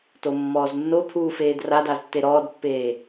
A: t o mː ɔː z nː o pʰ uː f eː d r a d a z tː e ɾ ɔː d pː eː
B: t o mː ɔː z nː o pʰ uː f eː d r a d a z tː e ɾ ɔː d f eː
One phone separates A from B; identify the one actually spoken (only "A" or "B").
A